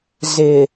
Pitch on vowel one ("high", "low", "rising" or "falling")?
low